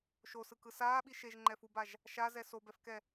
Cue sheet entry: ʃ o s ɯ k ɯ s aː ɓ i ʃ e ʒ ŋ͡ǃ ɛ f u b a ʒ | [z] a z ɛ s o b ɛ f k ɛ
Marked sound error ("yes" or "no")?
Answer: yes